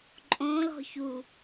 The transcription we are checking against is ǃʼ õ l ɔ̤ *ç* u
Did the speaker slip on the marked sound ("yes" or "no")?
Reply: no